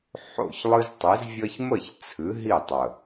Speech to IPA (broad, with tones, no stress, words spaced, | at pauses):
ħo̰˥˨çlˠɨ˥ztˤi˨˥zvʲʌ˥ç mə˥˨ç t͡sʰɨ˨˥ɦi˥˨tˤə˨˩